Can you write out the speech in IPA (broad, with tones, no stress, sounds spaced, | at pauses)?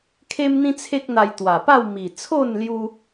kʰ e˦ m n̪ ĩ˦ t͡sʰ e˦ k̚ n̪ a˧ j t̪ w a˨˩ p a˥˧ w m i˨˩ t͡sʰ o˥˧ n l j u˧